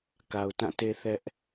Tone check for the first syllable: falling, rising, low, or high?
low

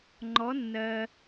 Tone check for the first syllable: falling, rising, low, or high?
rising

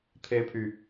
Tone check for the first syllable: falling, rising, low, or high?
high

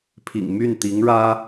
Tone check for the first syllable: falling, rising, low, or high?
low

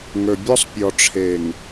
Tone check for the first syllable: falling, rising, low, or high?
low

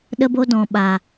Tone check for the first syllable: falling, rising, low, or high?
high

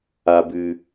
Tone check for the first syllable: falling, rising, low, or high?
low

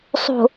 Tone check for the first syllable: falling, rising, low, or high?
low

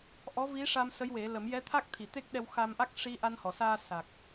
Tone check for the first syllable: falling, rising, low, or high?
rising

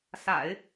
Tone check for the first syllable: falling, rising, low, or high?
low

